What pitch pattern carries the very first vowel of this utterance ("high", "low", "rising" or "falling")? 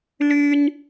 high